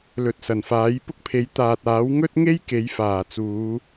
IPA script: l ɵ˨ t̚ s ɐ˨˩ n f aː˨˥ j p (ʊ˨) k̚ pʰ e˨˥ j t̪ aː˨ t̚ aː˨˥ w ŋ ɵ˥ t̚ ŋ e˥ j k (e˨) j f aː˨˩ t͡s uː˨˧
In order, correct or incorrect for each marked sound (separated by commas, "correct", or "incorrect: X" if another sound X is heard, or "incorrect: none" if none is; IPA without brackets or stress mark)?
incorrect: ʊ˥, incorrect: e˨˥